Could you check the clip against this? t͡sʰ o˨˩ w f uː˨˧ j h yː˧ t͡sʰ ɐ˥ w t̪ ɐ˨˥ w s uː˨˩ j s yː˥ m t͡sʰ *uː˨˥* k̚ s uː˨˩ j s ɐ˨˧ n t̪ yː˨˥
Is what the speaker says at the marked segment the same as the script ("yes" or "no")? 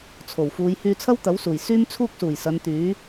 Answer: no